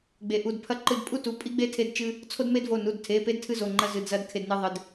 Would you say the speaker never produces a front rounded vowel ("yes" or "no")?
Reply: yes